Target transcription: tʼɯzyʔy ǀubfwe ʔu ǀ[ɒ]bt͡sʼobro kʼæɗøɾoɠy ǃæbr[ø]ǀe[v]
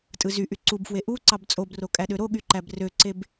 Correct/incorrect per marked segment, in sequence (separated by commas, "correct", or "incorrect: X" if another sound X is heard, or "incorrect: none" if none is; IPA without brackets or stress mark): incorrect: ɑ, correct, incorrect: b